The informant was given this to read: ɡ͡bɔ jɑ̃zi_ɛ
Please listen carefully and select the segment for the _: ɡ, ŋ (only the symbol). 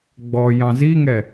ŋ